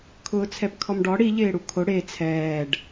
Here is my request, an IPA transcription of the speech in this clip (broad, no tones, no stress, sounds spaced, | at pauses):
kʰ ʊː t͡sʰ ɛ p kʰ ɔ m ɖ ɔ ɽ i ʎ ɪː ɽ u kʰ o ɽ e t͡sʰ ɛː ɖ